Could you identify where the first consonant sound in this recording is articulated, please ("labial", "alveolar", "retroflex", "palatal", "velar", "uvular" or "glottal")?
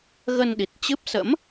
velar